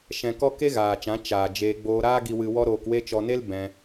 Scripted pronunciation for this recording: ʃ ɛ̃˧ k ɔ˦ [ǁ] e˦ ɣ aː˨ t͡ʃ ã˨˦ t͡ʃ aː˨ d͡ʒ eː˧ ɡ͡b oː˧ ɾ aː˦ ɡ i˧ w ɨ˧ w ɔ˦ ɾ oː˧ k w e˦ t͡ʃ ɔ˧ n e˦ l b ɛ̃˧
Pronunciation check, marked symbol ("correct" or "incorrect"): incorrect